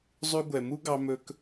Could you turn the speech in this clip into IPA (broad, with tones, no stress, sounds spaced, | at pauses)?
zˤ ʉ˧ ɡʷ ɛ˨ m u˦ ɡ ɑ˧ m ɵ˧ k